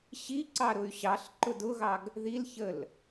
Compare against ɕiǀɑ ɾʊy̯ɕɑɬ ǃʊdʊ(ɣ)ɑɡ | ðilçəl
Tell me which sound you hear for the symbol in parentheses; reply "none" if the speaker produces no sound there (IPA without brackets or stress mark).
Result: ɣ